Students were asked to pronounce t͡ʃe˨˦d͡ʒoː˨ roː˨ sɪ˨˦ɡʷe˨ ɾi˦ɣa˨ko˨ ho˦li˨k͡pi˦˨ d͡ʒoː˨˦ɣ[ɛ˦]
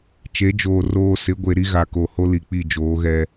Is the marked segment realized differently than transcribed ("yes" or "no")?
no